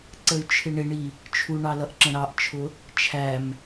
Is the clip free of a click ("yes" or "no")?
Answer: no